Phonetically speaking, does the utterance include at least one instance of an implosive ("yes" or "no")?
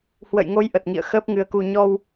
no